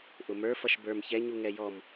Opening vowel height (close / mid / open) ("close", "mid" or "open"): close